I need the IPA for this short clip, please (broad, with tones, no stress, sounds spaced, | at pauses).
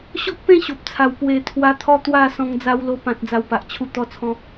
ɕ ɔ˦ k̚ p ẽ˥˧ ɕ o˨ p̚ t͡sʰ a˨˩ w p w e˨˩ t̪ʰ w a˧ t̪ʰ ɔ˦ t̪ w a˥˧ s ɔ̃˧ ŋ d͡z a˧ w l o˧ p ã˨ t̚ d͡z a˧ w p a˨ ʔ t͡ɕʰ u˥˧ t̪ ɔ˦ t͡sʰ ɔ̃˦